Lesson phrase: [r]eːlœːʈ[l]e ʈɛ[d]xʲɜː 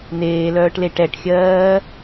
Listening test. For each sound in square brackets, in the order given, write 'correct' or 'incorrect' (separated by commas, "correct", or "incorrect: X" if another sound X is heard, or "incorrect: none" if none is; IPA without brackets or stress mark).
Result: incorrect: n̪, correct, incorrect: ʈ